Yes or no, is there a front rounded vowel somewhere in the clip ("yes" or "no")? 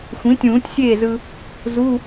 no